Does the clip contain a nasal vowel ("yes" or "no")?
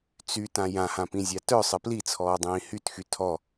yes